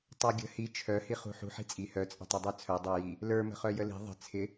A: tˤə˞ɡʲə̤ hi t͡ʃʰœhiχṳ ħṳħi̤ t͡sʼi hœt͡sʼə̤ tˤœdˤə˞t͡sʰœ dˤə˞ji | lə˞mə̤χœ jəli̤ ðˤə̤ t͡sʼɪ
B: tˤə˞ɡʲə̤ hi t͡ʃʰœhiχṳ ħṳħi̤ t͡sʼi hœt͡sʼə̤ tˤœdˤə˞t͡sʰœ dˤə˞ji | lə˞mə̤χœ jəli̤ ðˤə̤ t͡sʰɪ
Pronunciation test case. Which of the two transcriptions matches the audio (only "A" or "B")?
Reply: B